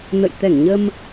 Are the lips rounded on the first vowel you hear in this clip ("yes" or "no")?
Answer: no